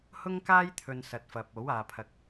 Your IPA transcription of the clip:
hʊ˥ŋkaː˥j t̪ʰɵ˨n sɐ˨t̚fɐ˨p̚o˨˥waː˨ pʰɐ˨k̚

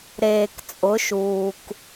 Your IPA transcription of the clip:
ɾeː˨kt͡sʼʊ˨˦ʃuː˨k

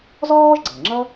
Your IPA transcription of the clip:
zɔː˥ʒɡ͡ǀɤ˩ŋ͡ǁʌ˥

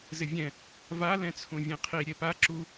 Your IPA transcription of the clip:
zɪvʲɛ̃ | va lɛ̃t͡sʰũvʲẽqʰi ɾʲepa ǁu

